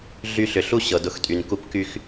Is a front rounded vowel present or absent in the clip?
present